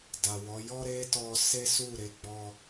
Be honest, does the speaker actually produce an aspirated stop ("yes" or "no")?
no